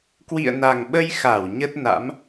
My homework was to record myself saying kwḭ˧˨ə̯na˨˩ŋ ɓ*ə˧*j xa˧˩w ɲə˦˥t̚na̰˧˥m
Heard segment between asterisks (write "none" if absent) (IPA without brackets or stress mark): ə˧